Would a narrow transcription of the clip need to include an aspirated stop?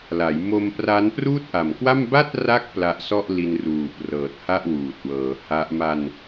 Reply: no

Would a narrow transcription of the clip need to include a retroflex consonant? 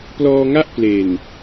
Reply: no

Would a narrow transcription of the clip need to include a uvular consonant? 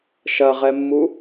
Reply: yes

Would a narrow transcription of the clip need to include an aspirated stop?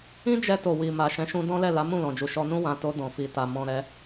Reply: no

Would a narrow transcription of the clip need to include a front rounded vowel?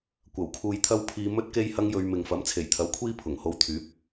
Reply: yes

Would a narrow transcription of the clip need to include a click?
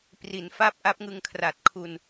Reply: no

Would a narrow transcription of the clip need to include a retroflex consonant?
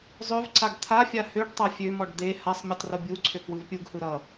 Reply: yes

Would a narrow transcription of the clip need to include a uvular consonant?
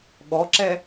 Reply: no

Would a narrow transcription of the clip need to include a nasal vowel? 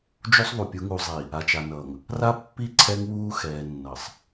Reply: no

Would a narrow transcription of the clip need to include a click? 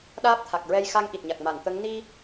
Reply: no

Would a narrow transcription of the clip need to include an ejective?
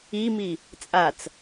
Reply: yes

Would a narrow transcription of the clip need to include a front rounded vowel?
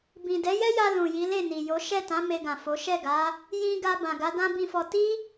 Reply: no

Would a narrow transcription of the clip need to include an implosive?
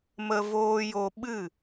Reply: yes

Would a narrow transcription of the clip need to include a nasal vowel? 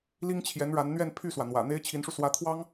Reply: no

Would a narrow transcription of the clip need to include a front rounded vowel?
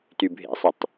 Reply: yes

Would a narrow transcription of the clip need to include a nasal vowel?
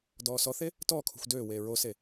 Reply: no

